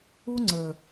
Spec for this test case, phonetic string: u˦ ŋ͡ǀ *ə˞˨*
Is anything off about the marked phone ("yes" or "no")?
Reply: no